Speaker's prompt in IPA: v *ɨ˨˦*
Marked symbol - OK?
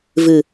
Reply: no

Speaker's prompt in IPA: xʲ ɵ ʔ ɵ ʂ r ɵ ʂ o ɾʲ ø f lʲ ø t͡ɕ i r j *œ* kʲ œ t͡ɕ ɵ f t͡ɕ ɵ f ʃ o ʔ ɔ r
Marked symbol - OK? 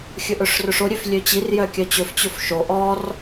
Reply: yes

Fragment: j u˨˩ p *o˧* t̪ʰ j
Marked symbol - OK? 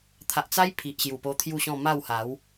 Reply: yes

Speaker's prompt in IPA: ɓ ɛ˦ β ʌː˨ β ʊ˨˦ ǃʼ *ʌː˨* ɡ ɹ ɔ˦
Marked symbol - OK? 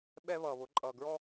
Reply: yes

